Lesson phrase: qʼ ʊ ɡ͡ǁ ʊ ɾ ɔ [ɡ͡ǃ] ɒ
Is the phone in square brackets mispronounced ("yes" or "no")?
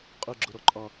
yes